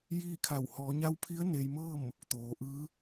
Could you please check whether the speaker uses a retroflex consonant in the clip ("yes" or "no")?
no